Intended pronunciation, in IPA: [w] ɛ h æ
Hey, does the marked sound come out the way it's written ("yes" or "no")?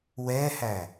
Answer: yes